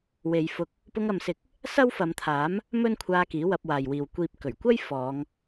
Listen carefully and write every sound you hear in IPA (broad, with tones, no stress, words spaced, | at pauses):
we˨˧jfʊ˧k̚ | pʊ˧ŋɐ˨msɪ˨k̚ | sɐ˥wfɐ˨˧mt̪ʰaː˨˥m | mɵ˥nkʷʰaː˧ kiː˨˥wɐ˧p̚waː˨jwiː˨w kʷiː˨p̚ kɵ˨˩ɥkʷɐ˥j fɔː˨˧ŋ